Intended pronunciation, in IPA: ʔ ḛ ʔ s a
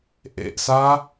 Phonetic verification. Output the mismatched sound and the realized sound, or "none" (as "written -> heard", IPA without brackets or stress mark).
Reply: none